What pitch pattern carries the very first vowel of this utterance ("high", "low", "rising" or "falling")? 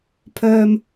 high